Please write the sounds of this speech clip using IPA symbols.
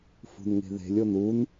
fṳnŋe̤ðe̤lʲon un

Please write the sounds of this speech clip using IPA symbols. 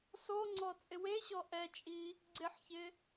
soŋ͡ǀɔ t͡sʼɪweɕɔ ʔɛt͡ʃʼi | ɡ͡ǀɪħçɪ

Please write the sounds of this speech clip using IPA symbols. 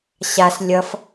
ɕas lʲʌf

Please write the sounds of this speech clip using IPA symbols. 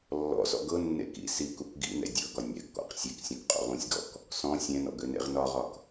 lːɔ̰sɔ̰ ɡɤnːḛ kḭ sikuk ɡḭnɛ̰ dʲɤɡɒ nʲɛ̰ɡkɔ̰q sʲeksʲɔ̃kqʼṵʁ ũsʲɡɔ̰k | sɔ̃ sʲɛ̃nɔ̰ɡønḛʁ nɒʁɒk

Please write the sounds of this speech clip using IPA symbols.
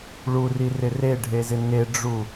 ɭurirɪ reɖʱezɪ neɖ͡ʐu

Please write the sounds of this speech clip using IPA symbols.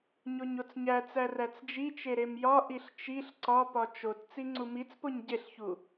ɲoɲot͡sɲæt͡sæ ræt͡sd͡ʒit͡ʃe ɾemjɒʔiɬ t͡ʃiɬ ǀɒpɒ t͡ʃot t͡siŋ͡ǀumit͡spoɲ ɟeɬçu

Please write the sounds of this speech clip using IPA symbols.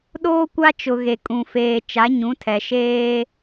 ɗoː˦kʷa˦t͡ʃʊ˨ ɣe˨kʼũ˨ feː˨ t͡ʃa˨˦ɲũ˨˦tʰɛ˨ʃeː˦

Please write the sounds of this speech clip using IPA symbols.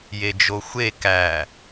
jed͡ʒoxʷe kæ

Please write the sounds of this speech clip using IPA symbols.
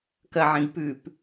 kɐʕĩɡ pʉp

